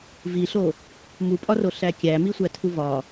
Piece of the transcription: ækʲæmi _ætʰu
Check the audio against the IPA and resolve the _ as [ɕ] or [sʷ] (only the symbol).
sʷ